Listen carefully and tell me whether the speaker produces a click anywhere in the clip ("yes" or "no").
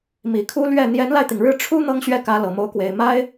no